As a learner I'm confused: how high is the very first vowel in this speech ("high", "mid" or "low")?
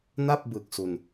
low